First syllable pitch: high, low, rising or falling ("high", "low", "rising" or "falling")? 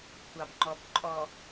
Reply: low